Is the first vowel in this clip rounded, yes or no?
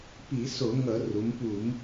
no